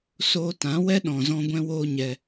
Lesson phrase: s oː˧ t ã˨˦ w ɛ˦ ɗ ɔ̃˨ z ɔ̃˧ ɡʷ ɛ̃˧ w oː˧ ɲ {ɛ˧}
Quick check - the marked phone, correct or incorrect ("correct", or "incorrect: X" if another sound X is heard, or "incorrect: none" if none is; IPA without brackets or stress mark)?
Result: correct